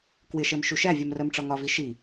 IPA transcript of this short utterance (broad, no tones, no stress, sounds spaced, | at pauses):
k w ɪ ʃ ɜ m ʃ u ʃ æ vʲ ɜ m r ɜ m ʈ͡ʂ ɒ ŋ ɒ v i ʃ i